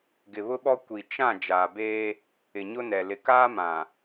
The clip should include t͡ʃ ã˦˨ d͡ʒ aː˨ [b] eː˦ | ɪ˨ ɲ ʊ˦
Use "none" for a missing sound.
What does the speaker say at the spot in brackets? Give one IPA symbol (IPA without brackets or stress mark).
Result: b